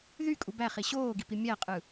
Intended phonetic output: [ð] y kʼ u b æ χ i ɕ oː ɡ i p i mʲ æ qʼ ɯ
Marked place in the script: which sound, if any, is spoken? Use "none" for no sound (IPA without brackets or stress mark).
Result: ð